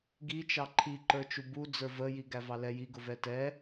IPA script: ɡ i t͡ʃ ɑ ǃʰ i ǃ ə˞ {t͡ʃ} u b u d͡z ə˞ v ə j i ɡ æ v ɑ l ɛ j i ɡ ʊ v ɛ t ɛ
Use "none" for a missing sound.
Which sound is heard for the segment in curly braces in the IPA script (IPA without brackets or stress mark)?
t͡ʃ